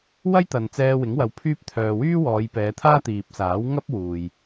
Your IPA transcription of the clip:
w ɐ˥ j t̪ ɐ˨ n t͡s ɛː˧ w ɪ˨˥ ŋ w ɐ˧ w pʰ yː˥ p̚ t̪ʰ œː˨ w yː˥ w ɔː˨˧ j p ɛː˨˧ t̪ʰ aː˥ t̪ iː˨ p̚ s aː˨˥ w ŋ ɐ˥ p̚ w uː˨ j

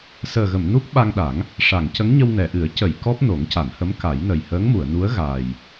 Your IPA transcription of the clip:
s əː˨˩ ɣ ə˨˩˨ m n u˦˥ k̚ ɓ a˧ ŋ ɗ a˨˩˦ ŋ | ʂ a˨˩˨ ŋ c ə˧˥ ŋ ɲ ə˧ w n ɛ˨˩˨ ʔ ɨ˨˩˦ ə̯ c ə˨˩˨ j k ɔ˦˥ p̚ n o˨˩˦ ŋ c a˨˩˨ n h ə˧˥ m k a˨˩˦ j n ə˨˩ j h əː˧˥ ŋ m u˨˩˨ ə̯ n u˧˥ ə̯ ɣ aː˨˩ j

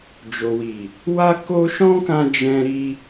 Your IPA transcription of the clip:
d͡ʒ o˨ w i˨ | w a˦ k o˦ ʃ ɔ̃˦ k ã˧ d͡ʒ ɛ̃˧ ɾ i˧

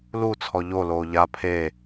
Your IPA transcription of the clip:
l u t͡sʰ ɔ ʎ o l oː ʎ a pʰ e

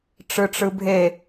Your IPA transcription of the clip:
ʈ͡ʂ ɯ ʈ͡ʂ ɯ bʱ e

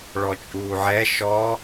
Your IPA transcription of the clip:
ɭ ɔ t͡ʃʼ uː ʕ ɛ ʃ ɔ

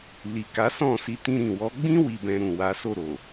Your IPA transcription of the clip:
l i˨ k a˨˦ s ɔ̃˦˨ s i˧ t ĩ˧ ɾ ĩ˨ w ɔ˨˦ ɡ͡b ĩ˦ w i˧ b ɛ̃˧ ɾ ũ˨ w a˨˦ s o˦˨ ɾ o˨

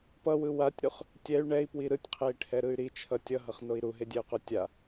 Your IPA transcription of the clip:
p ʌ w ɯ w a tʲ ɾ u χ | tʲ ɛ y̯ ɳ ɛ i̯ p w i ɾ ɯ tʲ qʰ e i̯ ʈʰ ɛ ɾ ɯ y̯ ɾ i t͡ʃʰ ʌ tʲ ʌ ɦ ʌ χ n o i̯ ɾ u ɦ e dʲ ɛ u̯ q o tʲ a

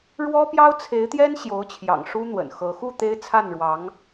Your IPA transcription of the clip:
ɻ w ɔ˥ p j ɑ˥ ʊ̯ t͡sʰ e˧˥ ɪ̯ t̪ j ɛ˥ n ɕ j o˧˥ ʊ̯ t͡ɕʰ j ɑ̰˨˩ ŋ ʂ u˥ n̪ w ə̰˨˩ n x ɤ˧˥ x u˥˩ t̪ e˥ ɪ̯ t͡sʰ a˥˩ n ɻ w ɑ˧˥ ŋ

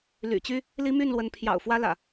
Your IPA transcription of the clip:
l y̰˨˩ t͡ɕ y˦ | l i˦ m y˥˨ n l w ə˨˦ n pʰ j ɑ̰˨˩ ʊ̯ f w ä˦ l ä̰˨˩

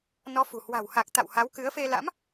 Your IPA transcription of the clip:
n ɔ˨˦ f ṳ˨˩ h w a̤˨˩ w h a˨˩ k̚ t̪ a̰˧˨ w h a˨˦ w k ɨ˨˦ ə̯ f e˧ l a̰˧˥ m

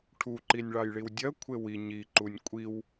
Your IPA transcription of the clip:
ʈʰ u ǃ i nʲ ɭ ɑ j ɭ i w dʲ ɜ kʷʰ e w i ɲ i ǃ u nʲ kʷʼ i w

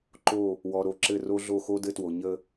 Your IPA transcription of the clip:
ǃ o˦˨ | w ɔ˨ ɾ o˨ ǁ ɘ˦˨ r o˦ ɮ o˦˨ x o˦ d ɘ˦ t w o˨ ɲ ə˦

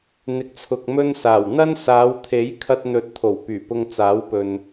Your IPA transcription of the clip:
n̪ ɪ˨˥ k̚ t͡sʰ ʊ˨ k̚ m ɵ˥ n s aː˨˩ w n̪ ɐ˥ n s aː˨˧ w t̪ʰ e˨˥ j kʰ ɐ˧ t̚ n̪ ɵ˨˥ t̚ t̪ʰ o˨˩ w p yː˨˩ p ʊ˧ ŋ t͡s aː˨˥ w p ɵ˨ n

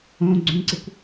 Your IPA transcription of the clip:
õ ɡ͡ǀ ũ ǀ e kʷ

